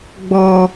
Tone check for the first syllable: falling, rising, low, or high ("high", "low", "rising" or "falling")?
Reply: low